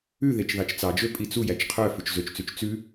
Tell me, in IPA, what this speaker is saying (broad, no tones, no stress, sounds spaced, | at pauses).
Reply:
ʉ ð e t͡ʃ ð ɑ t͡ʃ t͡s ɑ d͡ʒ ø pʼ i t͡s u j æ t͡ʃ qʰ œ f ʉ t͡ʃ z ø t͡ʃ t͡s ʉ t͡ʃ t͡s ʉ